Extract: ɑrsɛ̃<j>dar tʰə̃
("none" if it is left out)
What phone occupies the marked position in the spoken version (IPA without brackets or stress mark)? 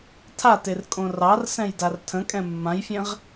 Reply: j